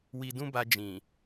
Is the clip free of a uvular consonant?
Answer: yes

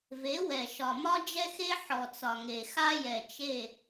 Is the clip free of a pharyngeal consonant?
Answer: no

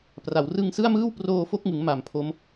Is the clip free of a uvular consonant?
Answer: yes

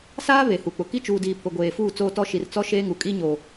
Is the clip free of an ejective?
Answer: no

